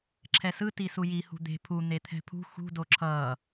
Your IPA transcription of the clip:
ǁʰ ɛ s ɯ t i s u j i h ṳ d̪ e̤ pʰ u n̪ e t̪ʰ ɛ̤ pʰ ṳ x ṳ d o ǁʰ ʌː

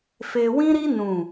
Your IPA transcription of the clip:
f e˧ w ĩ˦ ɾ i˦ n ũ˦˨

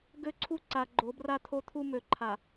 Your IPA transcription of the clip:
ɡ ø˦ ǀʰ u˦ ǀ a˨ ɡ͡ǃ o˨˦ b r a˦ t̪ʰ o˦ t̪ʰ u˦ m ø˨˦ ǃʰ a˨

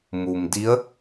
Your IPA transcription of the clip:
m u˩ m d i˧˥ ə̯

